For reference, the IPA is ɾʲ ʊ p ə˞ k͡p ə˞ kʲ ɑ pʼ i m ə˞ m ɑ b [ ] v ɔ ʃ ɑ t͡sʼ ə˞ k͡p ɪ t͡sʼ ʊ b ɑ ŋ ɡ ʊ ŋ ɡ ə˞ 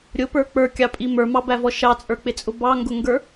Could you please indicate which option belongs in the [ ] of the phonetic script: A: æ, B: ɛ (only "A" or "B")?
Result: A